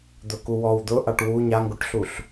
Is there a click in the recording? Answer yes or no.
no